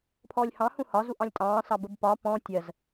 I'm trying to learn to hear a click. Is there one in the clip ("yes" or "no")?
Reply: no